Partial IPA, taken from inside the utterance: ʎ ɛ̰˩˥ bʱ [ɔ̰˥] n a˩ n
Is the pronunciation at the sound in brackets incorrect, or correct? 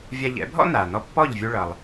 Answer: correct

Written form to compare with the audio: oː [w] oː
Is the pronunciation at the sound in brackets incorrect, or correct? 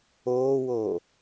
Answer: correct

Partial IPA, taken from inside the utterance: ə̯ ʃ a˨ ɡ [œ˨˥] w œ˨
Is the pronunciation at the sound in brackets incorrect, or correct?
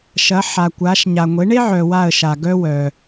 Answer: incorrect: œ˥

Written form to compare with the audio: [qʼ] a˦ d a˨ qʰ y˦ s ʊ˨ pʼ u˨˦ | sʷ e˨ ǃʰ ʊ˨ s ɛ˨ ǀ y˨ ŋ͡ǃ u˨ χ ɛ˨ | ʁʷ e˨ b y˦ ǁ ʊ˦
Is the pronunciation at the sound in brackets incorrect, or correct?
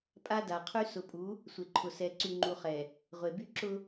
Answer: incorrect: pʼ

